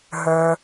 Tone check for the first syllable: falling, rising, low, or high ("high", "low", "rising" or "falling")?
low